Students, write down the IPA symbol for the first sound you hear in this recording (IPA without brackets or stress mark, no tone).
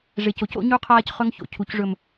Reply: ʐ